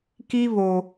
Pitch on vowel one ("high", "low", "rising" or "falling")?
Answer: high